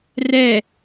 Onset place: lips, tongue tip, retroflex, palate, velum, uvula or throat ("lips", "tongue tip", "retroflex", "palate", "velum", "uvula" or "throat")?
tongue tip